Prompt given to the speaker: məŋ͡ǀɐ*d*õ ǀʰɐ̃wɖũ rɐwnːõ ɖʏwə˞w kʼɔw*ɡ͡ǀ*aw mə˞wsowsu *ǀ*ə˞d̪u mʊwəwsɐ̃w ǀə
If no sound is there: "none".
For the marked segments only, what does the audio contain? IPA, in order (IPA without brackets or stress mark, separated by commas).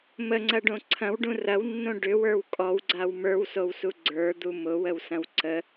ɖ, ɡ͡ǀ, ɡ͡ǀ